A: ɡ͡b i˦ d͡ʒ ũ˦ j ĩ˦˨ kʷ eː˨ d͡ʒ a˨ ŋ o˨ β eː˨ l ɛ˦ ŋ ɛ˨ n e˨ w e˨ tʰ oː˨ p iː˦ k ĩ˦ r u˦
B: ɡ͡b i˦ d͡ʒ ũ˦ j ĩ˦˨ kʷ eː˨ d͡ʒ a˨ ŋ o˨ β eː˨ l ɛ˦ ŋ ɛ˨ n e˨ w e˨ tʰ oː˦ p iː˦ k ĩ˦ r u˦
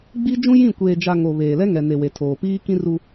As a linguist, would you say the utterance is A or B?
A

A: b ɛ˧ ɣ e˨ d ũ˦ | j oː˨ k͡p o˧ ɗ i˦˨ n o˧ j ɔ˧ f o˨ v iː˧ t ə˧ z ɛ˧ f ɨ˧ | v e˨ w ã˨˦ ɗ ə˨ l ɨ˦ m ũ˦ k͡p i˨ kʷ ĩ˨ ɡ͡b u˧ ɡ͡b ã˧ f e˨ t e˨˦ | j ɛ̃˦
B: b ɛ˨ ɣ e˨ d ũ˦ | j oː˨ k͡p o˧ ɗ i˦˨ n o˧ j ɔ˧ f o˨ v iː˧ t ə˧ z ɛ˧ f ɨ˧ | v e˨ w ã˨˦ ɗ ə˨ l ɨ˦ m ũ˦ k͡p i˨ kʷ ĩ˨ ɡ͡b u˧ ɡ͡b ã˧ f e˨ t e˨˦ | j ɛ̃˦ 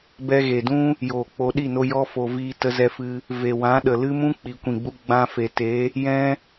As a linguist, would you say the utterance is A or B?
A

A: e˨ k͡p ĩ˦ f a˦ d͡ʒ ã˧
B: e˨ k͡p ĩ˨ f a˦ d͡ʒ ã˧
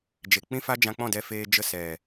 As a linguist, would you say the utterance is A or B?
A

